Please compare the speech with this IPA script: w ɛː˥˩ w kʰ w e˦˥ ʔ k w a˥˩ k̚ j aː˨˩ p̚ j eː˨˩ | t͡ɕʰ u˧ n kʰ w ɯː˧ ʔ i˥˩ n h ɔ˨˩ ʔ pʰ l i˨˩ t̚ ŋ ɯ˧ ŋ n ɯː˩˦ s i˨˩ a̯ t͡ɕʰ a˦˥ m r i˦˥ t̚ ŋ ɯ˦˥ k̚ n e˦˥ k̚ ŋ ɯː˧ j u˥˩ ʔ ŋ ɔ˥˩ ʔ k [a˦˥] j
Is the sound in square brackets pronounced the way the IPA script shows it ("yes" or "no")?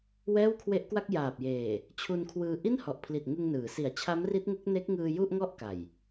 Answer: no